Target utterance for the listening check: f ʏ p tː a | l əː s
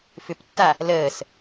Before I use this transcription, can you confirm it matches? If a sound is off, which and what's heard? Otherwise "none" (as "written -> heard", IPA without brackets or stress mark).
none